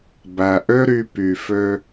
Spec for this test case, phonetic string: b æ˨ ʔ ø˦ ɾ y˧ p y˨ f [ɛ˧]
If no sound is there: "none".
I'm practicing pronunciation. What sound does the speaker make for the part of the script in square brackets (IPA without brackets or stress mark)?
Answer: ø˧